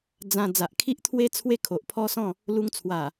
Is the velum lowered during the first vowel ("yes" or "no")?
yes